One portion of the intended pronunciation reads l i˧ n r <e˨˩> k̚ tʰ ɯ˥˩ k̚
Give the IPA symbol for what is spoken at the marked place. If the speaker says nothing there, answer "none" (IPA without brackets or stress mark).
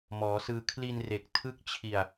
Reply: e˨˩